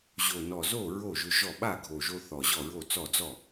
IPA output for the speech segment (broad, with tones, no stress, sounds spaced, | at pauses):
ʑ o˨˩ n ɔ˨˩ z o˥˩ ɹ o˥˩ ʒ ʏ˧ ʒ ɔ˥˩ ɓ a˥˩ ɡʱ o˨˩ ʒ o˧ θ ɔ˨˩ ʑ ɔ˥˩ ɹ o˥˩ t͡s ɔ˥˩ d͡z ɔ˥˩